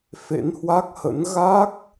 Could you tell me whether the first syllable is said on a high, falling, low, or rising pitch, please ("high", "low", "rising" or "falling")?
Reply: rising